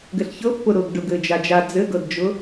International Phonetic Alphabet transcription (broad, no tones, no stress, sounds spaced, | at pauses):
ɡ ɘ ɬ ç ɤ pː ʊ ɾ ʊː ɡ ɖ ʊ ɡ ɘː d͡ʒ a d͡ʒ a d͡z ɘ ɡ ɤ d d͡ʒ ʊ